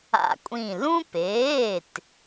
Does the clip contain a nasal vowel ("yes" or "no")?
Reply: yes